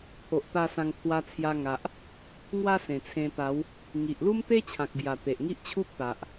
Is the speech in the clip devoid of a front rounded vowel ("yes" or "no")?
yes